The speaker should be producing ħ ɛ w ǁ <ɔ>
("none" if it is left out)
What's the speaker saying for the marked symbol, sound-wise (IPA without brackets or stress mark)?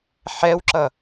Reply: ʌ